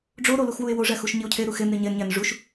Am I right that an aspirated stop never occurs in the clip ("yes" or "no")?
no